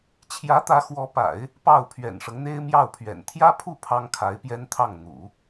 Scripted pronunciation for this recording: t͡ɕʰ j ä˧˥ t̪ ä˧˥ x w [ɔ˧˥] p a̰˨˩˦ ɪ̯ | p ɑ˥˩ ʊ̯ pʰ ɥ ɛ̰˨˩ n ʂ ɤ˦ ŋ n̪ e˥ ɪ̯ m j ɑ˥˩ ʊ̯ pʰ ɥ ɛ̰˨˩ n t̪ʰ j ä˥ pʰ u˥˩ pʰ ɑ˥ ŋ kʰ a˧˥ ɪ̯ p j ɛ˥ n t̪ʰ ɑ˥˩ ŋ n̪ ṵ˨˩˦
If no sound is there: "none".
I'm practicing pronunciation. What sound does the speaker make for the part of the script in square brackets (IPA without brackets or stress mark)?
ɔ˧˥